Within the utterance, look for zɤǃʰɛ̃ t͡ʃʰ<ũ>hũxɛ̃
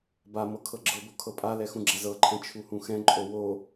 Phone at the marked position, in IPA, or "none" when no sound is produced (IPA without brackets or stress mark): u